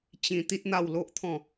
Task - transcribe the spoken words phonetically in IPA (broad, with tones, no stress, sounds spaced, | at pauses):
t͡ɕ ĩ˧ t̪ i˦ t̚ n̪ a˥˧ w l o˦ ʔ t̪ʰ ɔ̃˥˧